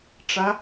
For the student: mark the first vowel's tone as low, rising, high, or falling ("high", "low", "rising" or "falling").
rising